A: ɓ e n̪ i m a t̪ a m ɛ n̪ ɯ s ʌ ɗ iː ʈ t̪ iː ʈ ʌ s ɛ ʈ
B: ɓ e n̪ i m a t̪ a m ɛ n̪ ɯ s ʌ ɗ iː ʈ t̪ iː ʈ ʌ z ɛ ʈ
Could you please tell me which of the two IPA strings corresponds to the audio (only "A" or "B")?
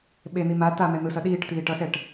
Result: A